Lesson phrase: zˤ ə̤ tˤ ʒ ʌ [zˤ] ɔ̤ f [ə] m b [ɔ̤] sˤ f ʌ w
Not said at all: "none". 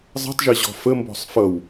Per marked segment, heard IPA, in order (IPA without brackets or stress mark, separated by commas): ʑ, ə, ɔ̤